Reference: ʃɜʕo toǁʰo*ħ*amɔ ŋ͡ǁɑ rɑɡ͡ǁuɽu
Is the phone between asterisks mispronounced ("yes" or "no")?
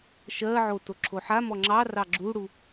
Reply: no